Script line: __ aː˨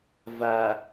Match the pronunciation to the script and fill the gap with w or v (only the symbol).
v